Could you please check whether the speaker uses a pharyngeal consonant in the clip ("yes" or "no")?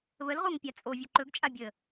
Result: no